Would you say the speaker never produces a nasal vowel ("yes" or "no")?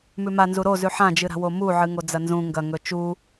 no